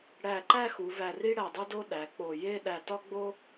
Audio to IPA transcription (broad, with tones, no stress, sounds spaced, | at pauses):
ɽ æ˧˩ ǃ æ˥˧ x u˩˧ v æ˧˩ r i˥ ɽ æ˧˩ dˤ o˥ d o˥ ɗ æ˩˧ k͡p o˧˩ j e˥˧ ɗ æ˧˩ t ɒ˥ ɡ͡b o˥